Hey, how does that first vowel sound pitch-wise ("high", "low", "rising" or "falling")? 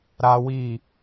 high